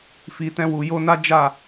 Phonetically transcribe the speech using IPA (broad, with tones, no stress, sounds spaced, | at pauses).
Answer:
f i˨ t ɛ̃˧ w u˨ j o˧ n a˦ d͡ʒ a˦˨